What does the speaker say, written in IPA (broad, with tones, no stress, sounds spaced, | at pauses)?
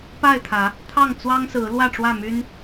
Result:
p a˥˨ ɪ̯ t̪ʰ ä˨˦ | t̪ʰ ɑ˥˨ ŋ t͡s w ɑ˦ ŋ s ɹ̩˨˦ l w ä˥˨ ʈ͡ʂ w ä˥˨ m y˦ n